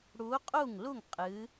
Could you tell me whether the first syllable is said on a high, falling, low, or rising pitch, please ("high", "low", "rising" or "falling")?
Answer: rising